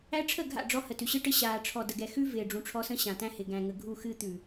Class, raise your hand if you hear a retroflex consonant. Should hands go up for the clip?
yes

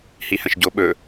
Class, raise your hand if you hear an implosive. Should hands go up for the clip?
yes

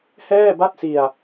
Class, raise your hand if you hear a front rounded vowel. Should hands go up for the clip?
no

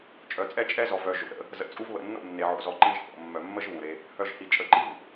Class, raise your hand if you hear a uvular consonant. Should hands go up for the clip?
no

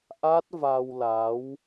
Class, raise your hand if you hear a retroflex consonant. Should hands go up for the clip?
no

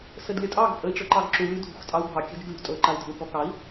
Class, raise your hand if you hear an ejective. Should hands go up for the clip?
yes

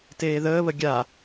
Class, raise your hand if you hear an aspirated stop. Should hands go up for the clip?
no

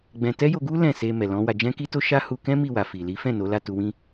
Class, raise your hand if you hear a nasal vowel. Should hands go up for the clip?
yes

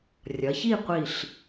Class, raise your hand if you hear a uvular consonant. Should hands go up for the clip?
yes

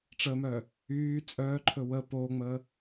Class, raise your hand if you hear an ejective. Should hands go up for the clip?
yes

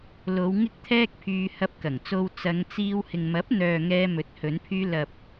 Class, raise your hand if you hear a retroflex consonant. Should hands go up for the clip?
no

